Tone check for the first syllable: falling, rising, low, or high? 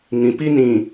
low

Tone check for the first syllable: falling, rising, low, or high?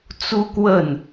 high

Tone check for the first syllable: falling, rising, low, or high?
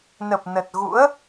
low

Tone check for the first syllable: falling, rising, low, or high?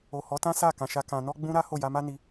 low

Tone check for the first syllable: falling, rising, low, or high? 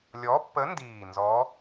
rising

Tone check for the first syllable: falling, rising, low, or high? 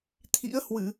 rising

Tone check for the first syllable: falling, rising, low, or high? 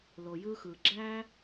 low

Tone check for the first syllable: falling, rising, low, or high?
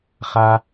high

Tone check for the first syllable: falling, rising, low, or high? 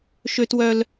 high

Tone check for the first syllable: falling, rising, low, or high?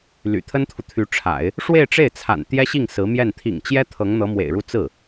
low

